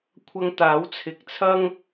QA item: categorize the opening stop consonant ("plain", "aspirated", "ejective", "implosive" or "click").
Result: aspirated